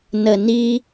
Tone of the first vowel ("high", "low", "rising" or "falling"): low